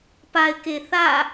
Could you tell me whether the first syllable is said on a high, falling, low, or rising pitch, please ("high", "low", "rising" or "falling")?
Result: low